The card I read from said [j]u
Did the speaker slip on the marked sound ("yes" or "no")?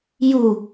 no